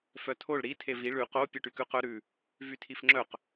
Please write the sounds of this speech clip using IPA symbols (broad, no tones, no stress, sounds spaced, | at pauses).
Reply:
f œ tʰ o ɭ ɾ i tʰ e v i ɭ ʉ q o pʲ o ʈ y k ʉ q œ ɾ ʉ | v y tʰ i f ŋ͡ǁ œ q